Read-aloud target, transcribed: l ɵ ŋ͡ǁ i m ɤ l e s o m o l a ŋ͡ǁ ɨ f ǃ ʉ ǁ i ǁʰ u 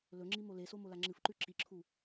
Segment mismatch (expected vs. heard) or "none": ɤ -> o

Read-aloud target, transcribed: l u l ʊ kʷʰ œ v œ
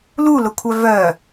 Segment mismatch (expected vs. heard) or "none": none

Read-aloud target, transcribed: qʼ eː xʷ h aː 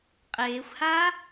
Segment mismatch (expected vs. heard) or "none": none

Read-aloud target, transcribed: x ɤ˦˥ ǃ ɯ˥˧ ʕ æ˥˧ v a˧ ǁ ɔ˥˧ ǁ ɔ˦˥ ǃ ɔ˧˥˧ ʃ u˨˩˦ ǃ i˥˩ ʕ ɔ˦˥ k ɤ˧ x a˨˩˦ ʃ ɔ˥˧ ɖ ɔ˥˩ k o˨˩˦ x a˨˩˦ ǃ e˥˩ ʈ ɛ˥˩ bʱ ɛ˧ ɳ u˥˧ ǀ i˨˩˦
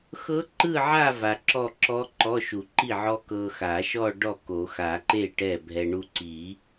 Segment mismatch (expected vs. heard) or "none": æ˥˧ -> a˥˧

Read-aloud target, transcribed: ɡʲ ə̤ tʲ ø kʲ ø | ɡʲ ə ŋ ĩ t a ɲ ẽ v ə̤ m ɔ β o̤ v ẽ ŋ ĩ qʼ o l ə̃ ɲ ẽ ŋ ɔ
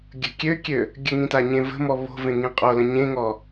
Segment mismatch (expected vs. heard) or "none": tʲ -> kʲ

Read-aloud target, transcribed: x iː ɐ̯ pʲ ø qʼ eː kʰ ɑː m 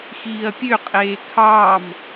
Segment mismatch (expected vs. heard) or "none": none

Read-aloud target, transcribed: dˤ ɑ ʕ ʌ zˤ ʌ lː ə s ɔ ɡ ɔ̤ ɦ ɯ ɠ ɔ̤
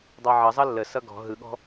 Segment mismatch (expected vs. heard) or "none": ɔ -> ʌ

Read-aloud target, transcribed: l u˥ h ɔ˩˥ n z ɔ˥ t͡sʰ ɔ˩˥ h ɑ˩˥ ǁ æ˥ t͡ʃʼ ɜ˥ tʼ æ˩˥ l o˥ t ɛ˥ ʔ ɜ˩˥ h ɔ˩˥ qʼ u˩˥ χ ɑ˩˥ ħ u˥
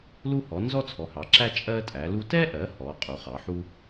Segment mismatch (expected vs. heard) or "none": o˥ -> u˥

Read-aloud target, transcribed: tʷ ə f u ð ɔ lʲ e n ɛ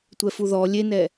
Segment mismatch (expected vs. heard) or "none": ə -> ɛ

